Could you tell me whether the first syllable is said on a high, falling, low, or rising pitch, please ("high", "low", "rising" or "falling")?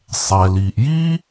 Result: low